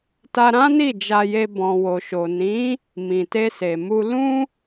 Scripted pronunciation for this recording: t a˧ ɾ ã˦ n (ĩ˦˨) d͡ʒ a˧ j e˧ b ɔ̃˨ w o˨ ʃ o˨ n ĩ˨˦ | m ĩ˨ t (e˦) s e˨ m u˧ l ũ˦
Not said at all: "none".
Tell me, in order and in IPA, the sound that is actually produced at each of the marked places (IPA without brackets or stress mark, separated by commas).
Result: i˦˨, e˧